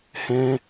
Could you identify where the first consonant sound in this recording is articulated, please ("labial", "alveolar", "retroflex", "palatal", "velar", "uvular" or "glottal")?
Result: glottal